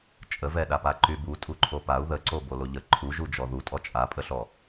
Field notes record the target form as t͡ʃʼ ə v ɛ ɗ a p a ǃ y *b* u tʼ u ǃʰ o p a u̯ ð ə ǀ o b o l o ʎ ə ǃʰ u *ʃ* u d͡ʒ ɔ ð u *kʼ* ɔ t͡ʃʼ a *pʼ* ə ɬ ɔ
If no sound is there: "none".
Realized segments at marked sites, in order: b, ʒ, tʼ, pʼ

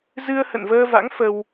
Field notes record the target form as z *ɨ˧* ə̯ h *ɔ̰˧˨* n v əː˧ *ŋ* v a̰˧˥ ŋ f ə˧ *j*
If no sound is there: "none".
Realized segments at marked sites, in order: ɨ˧, ə̰˧˨, none, w

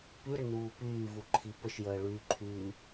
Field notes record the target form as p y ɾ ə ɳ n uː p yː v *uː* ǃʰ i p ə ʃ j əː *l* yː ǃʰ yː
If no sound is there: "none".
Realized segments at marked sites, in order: u, ɭ

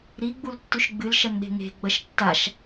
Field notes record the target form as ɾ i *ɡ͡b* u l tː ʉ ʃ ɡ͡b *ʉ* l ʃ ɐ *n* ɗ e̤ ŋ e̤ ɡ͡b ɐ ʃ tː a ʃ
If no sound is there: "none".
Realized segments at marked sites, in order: ɡ͡b, ɨ, n

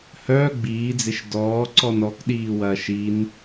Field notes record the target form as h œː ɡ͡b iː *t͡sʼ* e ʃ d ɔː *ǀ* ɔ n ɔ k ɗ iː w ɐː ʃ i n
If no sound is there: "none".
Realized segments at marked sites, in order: d͡z, ǀ

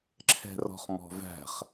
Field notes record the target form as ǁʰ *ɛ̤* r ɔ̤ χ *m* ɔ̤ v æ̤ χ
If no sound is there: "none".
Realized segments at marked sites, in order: ɛ̤, m

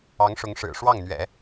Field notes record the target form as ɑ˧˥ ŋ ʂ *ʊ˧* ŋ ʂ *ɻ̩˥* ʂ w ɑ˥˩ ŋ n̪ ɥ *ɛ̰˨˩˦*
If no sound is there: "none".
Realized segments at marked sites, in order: ʊ˧˥, ɻ̩˨˩, ɛ̰˨˩˦

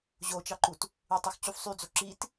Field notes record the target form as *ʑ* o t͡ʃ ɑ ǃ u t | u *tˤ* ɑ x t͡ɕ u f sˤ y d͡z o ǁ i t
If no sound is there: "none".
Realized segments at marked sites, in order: ʑ, tˤ

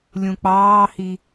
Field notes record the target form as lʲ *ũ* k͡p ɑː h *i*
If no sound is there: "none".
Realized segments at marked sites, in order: ũ, i

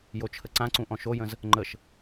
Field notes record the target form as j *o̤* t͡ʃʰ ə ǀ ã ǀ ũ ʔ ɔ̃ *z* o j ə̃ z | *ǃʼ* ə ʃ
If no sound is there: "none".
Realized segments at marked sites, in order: o, ʃ, ŋ͡ǃ

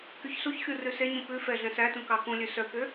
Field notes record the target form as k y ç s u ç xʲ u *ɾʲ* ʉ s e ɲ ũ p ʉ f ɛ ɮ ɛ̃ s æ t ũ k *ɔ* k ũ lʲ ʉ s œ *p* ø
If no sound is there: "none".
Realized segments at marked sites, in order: r, ɑ, k

